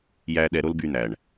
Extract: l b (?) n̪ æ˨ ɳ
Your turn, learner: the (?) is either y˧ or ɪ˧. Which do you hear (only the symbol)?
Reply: y˧